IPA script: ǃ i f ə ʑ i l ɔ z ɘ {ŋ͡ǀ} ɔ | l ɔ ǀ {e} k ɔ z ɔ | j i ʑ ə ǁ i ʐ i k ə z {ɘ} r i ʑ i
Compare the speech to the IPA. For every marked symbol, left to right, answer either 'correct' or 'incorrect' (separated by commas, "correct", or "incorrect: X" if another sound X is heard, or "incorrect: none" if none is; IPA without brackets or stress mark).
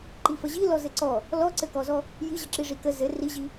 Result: incorrect: ǀ, incorrect: ɘ, correct